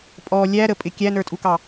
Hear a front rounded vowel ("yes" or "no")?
no